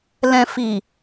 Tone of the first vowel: low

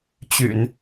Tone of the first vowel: low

